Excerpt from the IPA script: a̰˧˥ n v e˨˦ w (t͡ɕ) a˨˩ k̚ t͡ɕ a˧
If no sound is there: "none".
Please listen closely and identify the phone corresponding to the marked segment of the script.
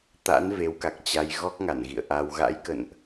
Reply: k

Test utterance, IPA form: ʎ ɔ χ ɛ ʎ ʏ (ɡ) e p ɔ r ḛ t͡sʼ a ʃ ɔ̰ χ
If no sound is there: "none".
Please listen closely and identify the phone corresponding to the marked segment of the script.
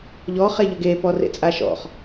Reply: ɡ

